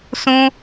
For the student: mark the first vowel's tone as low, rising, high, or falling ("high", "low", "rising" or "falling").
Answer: high